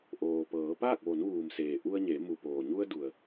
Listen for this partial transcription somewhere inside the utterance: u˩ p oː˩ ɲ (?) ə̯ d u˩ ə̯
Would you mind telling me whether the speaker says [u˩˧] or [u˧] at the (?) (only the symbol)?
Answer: u˧